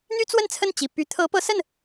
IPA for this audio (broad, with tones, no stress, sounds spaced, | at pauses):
n̪ y˥ t͡s w ə˥˧ n t͡sʰ ə˥˩ n t͡ɕ i˨˩ p y˧˥ t̪ʰ ɤ˧˥ p ɤ˧˥ s ə˥˩ n